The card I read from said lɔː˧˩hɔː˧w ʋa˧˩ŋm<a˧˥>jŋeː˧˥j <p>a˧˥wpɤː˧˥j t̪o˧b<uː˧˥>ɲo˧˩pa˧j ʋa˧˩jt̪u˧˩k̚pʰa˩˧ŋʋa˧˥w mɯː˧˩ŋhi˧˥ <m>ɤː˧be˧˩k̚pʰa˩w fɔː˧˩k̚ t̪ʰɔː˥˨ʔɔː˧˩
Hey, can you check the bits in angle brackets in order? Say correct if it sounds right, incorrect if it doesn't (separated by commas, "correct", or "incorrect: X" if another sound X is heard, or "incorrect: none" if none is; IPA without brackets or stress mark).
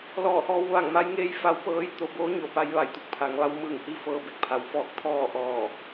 correct, incorrect: f, incorrect: oː˧˥, incorrect: f